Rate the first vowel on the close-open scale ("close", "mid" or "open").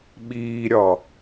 close